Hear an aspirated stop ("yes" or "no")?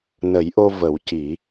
no